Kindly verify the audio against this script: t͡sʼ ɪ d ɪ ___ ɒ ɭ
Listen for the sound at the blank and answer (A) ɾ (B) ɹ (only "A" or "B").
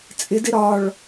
A